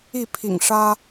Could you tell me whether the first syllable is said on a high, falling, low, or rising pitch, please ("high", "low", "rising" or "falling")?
falling